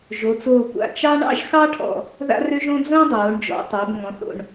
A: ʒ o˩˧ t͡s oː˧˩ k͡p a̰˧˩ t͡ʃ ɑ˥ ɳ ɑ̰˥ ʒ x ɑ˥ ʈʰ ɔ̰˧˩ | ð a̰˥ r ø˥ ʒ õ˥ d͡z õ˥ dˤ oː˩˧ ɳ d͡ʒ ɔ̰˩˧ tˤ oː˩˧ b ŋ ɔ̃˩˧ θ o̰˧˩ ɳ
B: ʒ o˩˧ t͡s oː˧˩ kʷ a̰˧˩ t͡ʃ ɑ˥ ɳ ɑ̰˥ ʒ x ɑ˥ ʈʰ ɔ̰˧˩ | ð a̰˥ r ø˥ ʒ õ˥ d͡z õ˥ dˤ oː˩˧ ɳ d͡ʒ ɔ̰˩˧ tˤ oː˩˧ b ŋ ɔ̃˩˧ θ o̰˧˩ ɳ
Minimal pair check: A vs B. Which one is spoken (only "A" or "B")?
B